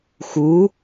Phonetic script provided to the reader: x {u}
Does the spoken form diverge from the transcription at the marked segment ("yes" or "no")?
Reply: no